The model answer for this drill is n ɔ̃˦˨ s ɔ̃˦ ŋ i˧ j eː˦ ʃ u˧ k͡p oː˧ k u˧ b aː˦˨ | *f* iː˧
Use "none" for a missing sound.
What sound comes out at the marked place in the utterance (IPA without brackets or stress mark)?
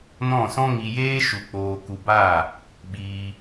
ɓ